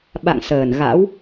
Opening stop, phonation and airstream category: implosive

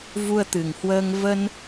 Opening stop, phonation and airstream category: plain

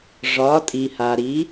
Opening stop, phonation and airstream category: ejective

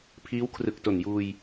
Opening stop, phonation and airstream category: aspirated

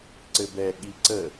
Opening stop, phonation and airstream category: click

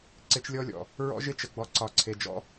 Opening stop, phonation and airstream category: click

